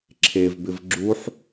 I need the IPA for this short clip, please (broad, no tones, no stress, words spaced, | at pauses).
ǁʰevbɪv ɡ͡ǁuħ